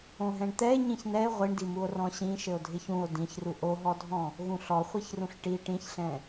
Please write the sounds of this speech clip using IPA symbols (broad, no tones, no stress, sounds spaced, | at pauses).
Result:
õ ɦ ɛ̃ ɳ t̪ ɛ e̯ ɲ ĩ ç n ɛ e̯ ʁʷ i ɳ d i m u o̯ r ɔ̃ ɕ ĩ ʃ ɘ o̯ dʱ ɪ ç ũ o̯ d ĩ ç r u ʔ o ɦ ɔ dʱ ɔ̃ | ɣ ũ ɬ ɔ χʷ i ç r ũ ɬ ʈ i ʈ ĩ ç ɬ ɛ̃